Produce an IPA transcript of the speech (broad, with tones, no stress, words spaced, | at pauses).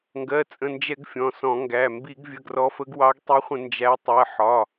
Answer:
ŋɡɜ˩˧˩t͡sʼə̃˩˧˩nd͡ʒɛ˧˩˧ɡ fʲɔ̃˩˧˩sɔ̃˧˩˧ŋɡæ˩˧˩ mbi˧˩˧ɡvʲə˩˧˩ ɡrɔ˨˦fə˨˦ɡ wɑ˨˦ɡ tˤi˨˦χʷə̃˧˩˧ nd͡ʒæ˨˦tˤɜ˩˧˩ ħɒ˩˧˩